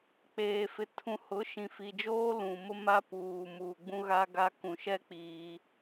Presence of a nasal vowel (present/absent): present